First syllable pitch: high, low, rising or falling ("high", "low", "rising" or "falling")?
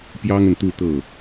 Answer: high